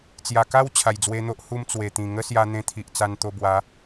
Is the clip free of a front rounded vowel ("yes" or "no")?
yes